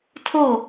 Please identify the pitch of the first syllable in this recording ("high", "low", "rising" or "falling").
falling